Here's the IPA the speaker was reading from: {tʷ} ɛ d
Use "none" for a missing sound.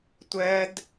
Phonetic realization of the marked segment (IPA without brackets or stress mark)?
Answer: tʷ